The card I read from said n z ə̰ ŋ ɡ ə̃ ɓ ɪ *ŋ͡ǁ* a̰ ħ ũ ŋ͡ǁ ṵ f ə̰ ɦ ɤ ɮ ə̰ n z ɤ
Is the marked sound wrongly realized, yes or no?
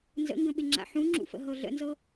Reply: no